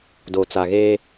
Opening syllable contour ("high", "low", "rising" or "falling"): low